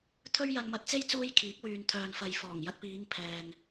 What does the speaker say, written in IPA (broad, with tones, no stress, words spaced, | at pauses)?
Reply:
t̪ʰɵ˥ɥjɐ˧nmɐ˧t̚t͡se˥j t͡suː˥jkʰiː˨˥k̚ wyː˨nt̪ʰœː˨nfɐ˨j fɔː˨˩ŋjɐ˧t̚piː˨˧ŋ pʰɛː˨ŋ